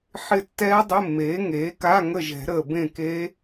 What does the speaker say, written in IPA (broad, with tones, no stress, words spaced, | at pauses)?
ħɪ˦˨tːɛː˦˥dˤɪ˧˥˧mːeː˩˥ ŋeː˩˥ka˧˥˧ ŋə˦˨ʒɛ̤˨˩˦ ɾəː˨bẽ˦˨ keː˦˥